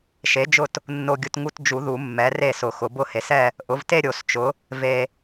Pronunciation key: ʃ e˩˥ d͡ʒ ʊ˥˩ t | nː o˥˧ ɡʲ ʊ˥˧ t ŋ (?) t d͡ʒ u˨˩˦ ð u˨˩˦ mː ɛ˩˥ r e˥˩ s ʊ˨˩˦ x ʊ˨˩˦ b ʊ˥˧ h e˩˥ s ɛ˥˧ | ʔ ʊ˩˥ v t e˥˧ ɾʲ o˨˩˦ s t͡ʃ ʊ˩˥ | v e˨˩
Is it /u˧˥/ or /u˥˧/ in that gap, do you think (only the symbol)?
u˥˧